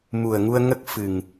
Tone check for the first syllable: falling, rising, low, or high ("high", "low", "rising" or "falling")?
low